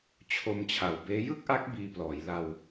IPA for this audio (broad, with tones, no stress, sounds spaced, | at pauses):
t͡ɕʰ o˧ m t͡ɕʰ a˨˩ w b eː˦˥ j ɯ˥˩ k̚ ʔ a˦˥ k̚ b iː˧ p l ɔː˩˦ j l a˧ w